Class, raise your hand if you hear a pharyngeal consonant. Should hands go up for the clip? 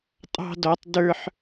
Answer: yes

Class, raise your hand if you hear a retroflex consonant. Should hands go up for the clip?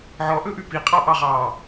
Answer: no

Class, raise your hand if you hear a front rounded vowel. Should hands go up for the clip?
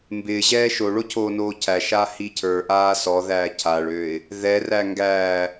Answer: yes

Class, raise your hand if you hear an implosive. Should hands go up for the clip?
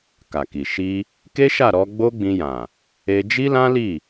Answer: no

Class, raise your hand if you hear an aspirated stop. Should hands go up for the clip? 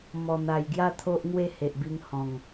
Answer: yes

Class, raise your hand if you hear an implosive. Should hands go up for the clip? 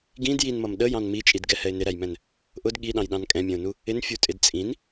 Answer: yes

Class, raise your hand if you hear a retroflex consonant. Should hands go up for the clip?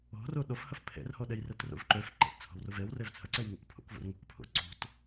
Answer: no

